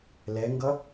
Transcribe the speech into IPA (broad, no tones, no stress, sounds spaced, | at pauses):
l ɛ ŋ ɡ ʌ